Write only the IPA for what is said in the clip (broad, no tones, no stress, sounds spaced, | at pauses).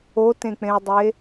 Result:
o t ẽ k͡p ẽ ɐ̯ dˤ e